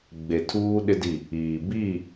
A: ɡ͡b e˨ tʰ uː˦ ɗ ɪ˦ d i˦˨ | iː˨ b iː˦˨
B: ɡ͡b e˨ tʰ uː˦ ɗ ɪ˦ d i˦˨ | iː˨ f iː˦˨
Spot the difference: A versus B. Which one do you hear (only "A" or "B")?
A